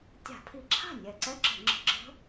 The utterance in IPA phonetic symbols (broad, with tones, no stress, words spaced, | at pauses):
tʲa̤˧˩˧pʰi˧˩˧ǁʰa̤˥˩ nʲɛ˨˩ǀɛ˦˥ǁə̤˧˩˧ ŋ͡ǁə̤˨˦ɡ͡ǁə̤˦˥